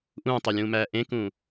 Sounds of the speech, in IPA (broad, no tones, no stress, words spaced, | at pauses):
ʔũːtˤolʲũːmæː ʔẽkũ